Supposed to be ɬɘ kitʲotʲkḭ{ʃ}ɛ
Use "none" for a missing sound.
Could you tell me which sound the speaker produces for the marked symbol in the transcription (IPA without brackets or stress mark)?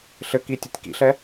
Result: ɬ